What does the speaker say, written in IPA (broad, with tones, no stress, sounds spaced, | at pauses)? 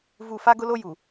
v u˨ f a˦ ɡ ʊ˦ l o˦ j u˨